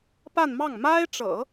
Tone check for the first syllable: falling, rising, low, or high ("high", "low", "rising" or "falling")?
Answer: falling